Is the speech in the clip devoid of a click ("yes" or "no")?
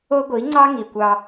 no